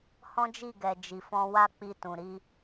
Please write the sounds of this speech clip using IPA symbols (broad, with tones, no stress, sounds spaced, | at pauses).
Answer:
h ɔ̃˦ d͡ʒ i˦˨ ɡ ɛ˨ d͡ʒ i˨ f ɔ̃˧ w a˦ k͡p i˧ t ũ˨ ɾ i˧